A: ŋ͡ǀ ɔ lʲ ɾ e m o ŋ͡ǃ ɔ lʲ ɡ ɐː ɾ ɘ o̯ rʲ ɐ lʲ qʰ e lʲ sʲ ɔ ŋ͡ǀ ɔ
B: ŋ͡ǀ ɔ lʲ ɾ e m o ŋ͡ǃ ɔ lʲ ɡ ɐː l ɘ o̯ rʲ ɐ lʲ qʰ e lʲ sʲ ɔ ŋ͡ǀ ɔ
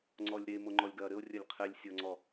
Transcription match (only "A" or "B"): A